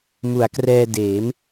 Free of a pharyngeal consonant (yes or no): yes